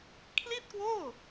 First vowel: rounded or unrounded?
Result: unrounded